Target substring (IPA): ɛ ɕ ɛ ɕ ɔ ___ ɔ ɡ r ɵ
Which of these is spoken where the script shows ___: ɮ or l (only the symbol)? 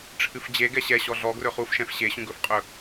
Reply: ɮ